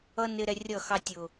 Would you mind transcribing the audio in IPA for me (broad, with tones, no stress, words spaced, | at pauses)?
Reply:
ʌ˦ nɪ˦ɾɛ˦ rʲʌ˦˨xɑ˦ tʲʊ˨